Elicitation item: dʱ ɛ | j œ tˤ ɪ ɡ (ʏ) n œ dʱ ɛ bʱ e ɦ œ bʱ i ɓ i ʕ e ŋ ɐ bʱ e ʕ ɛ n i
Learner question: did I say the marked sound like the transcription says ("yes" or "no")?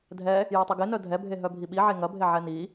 no